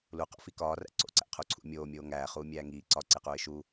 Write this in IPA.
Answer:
l u q o̰ f i k ɒː r æ̰ ǀ o̰ ǀ æ̰ qʰ u ǀʰ ṵ mʲ oː mʲ oː ŋ æː χ uː mʲ æː ŋ iː ǀ ɒ ǀ e q uː ɪ̯ ʃ u

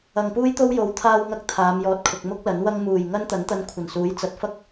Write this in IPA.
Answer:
ɐ˨ ŋ p uː˥ j t̪ o˥ w j o˨˥ w t̪ʰ aː˧ w ŋ ɐ˧ k̚ t̪ʰ aː˨˧ m j ɔː˨ t̚ kʰ ʊ˨ k̚ m ʊ˥ k̚ l ɐ˨˥ n w ɐ˥ ŋ m uː˨˩ j ŋ ɐ˥ n t̪ ɐ˨˥ n t̪ ɐ˧ n kʷʰ ɐ˨˩ n s uː˨˥ j t͡s ɐ˨˥ t̚ f ɐ˥ k̚

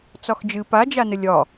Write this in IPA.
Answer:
t͡s ɒ x d͡ʒ ɨ p a d͡ʒ a n ə lʲ ɒ

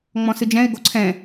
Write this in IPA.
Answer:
ŋ͡m ɔ̃ s ɨ d͡ʒ ɛ̃ ɪ̯ ɡ o ǀʰ ɛ̃

